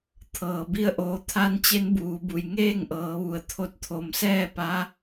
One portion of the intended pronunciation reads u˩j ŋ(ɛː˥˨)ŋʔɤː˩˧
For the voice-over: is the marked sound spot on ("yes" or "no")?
no